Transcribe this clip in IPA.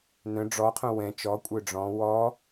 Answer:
n œ̃ ɖ͡ʐ ɔ qʰ õ w ɛ̃ t͡ʃ ɔ kʷʼ œ ɖ͡ʐ ɔ̃ w ɔ

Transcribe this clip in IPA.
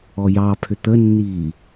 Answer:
ɔ j ɑ pʰ ʏ t̪ ə nː iː

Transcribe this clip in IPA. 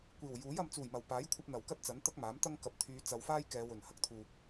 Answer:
kʷ iː˨˩ w j uː˨˥ j ɐ˧ m t͡s uː˨˩ j m ɐ˨˩ w p aː˨˥ j kʷʰ ɐ˧ p̚ n̪ ɐ˨˩ w k ɐ˥ t̚ t͡s ɐ˨˥ n t̪ ɐ˥ k̚ m aː˨˥ m t̪ ɐ˥ ŋ k ɐ˨ p̚ t̪ʰ yː˨˧ t͡s ɐ˨˧ w f aː˥ j k ɛː˨˧ w ɵ˨˩ n h ɐ˨˥ k̚ t̪ʰ uː˨

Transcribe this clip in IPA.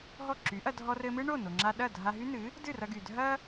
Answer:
ɦ ɔ˥˩ ǁ y˩˥ ʔ ɐ˧ dʱ ɔ˧ r ɘ˧ m ɨ˥ ɳ o˥˩ n o˩ ŋ͡ǁ a˧ ɗ ɐ˥˩ dʱ a˧ ɦ y˥ n ɨ˩˥ | d ɨ˥˩ r ɐ˧ ɡ y˩ dʱ ɐ˥

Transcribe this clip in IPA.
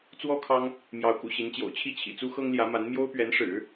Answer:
t͡s w ɔ˥ kʰ ɑ˥ ŋ | m j ɑ˧˥ ʊ̯ k ṵ˨˩ ɕ i˧˥ n t͡ɕ j o̰˨˩ ʊ̯ t͡ɕʰ i˥˩ t͡ɕʰ ḭ˨˩ t͡s u˥ x ɤ˥ ŋ l j ä˧˥ m a˧˥ n m j o˥ ʊ̯ p ɥ ɛ˧˥ n ʂ ɻ̩˨˩˦

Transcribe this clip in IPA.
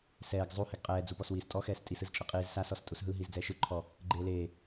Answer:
s ɛː ɡ zˤ u h ɛ ɡ qʼ ɛː d͡z u p ɔ s w iː s tʼ ɔ x ɛː s tʼ i s ɯ z t͡ʃʼ ɛ qʼ iː z s a s ɔ s tʼ u s ɦ ɯ ɦ iː z d͡z ɛː ʃ ɯ ǃʰ ɔ | ɡ͡ǃ eː l eː

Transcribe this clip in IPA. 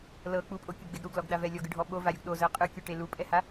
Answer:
l ɤ k͡p u pʼ o kʲ u ɡ͡b e ɡ ɾ u ɡ l ɔ ɡ ɗ a v ɛ lʲ ɔ ɡ ɯ ɖʱ ɔ ɓ o v a ɾʲ u ɡ ɗ o z ɤ qʼ ɯ kʲ u ʈ e l u pʼ ɛ h a

